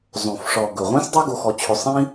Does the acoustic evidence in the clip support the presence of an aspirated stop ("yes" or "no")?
yes